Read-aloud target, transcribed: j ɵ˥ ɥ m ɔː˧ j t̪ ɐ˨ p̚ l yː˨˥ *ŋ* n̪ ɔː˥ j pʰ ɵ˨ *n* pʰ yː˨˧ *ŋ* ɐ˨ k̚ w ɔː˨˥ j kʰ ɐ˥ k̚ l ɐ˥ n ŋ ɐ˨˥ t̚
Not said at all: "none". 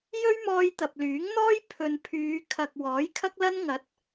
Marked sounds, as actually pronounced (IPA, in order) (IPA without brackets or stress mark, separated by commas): ŋ, n, kʰ